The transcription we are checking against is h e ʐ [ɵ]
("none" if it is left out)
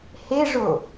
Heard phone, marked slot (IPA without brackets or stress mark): o